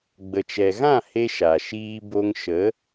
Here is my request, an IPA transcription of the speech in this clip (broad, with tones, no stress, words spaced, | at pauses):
ɡ͡bə˨t͡ʃɛ˨ɣã˦˨ he˦ ʃa˨ ʃiː˧bo˧ŋʃə˨˦